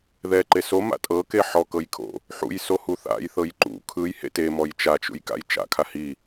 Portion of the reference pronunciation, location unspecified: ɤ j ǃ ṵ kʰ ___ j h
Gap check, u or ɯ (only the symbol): ɯ